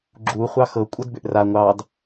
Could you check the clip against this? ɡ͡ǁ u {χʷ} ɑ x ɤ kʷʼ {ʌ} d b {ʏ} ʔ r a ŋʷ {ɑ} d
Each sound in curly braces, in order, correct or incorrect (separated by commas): correct, correct, correct, correct